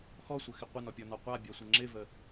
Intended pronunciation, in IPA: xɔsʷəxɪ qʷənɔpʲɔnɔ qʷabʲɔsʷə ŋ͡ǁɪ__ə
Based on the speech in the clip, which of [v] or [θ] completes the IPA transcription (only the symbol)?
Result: v